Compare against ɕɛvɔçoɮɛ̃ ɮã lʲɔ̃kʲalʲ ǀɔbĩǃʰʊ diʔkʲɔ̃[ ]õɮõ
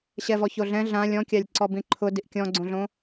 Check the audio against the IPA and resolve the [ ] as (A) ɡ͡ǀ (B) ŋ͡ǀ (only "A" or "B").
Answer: A